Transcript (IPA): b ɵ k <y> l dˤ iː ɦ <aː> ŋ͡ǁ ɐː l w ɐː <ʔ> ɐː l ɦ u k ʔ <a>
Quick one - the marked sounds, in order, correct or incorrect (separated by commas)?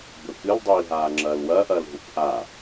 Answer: incorrect, correct, correct, correct